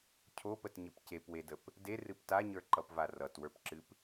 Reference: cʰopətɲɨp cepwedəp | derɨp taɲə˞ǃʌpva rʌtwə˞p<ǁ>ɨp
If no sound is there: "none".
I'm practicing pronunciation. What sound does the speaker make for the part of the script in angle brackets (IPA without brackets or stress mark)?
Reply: ǁ